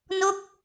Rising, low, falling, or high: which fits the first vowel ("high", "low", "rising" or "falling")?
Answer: falling